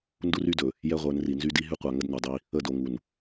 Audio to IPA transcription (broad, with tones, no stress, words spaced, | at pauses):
ndu˦ry˦dɵ˨ | jɛ˦ʁʷə˞˨˦nri˨ nzy˦di˦ ɦy˦qʷa˨ŋə˦d no˨dˤi˦ | ə˦˨do˨ŋu˨n